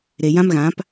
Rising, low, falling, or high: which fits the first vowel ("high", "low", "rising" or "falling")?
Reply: low